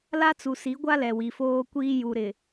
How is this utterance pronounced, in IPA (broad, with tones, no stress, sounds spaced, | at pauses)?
l a˦ t͡s u˨ s i˨˦ ɡʷ a˦ l ɛ˨ w i˨ f oː˦ kʷ iː˦ j u˨ ɾ ɪ˨